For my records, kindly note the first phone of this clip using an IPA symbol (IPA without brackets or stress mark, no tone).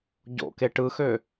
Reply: ɟ